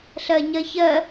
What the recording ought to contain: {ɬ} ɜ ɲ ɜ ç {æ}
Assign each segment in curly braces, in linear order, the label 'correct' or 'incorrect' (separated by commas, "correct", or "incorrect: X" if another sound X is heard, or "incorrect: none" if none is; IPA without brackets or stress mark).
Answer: correct, incorrect: ɜ